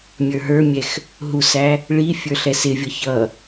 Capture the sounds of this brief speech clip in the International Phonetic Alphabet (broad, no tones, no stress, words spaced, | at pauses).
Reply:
mʲə˞ɦə˞mʲɛx | ɦusæ | ɭifʲə˞ ɬɛsɪvʲʌ çʌ